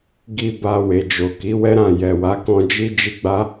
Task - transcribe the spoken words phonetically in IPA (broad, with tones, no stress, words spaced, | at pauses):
ɡi˧ ba˧we˨d͡ʒo˨ ki˨˦wɛ˦ɾã˦˨ jɛ˨wa˨˦kɔ̃˧ d͡ʒi˦ d͡ʒi˦ɡ͡ba˦